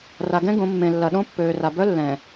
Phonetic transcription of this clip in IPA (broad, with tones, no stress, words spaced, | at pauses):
ra˨ɡɛ̃˦ ɡõ˨˦ mːẽ˨lːɐ˨ ɗõ˦pːøː˨ra˨ bœ˦lːɛ̃˨